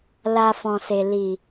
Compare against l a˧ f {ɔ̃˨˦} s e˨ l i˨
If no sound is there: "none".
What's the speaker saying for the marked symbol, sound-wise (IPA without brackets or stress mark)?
ɔ̃˨